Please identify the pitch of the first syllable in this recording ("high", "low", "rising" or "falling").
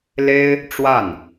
high